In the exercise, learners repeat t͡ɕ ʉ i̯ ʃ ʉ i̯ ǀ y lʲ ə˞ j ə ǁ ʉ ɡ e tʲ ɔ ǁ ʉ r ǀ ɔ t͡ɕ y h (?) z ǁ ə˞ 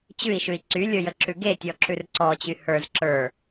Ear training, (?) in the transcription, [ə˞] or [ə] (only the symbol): ə˞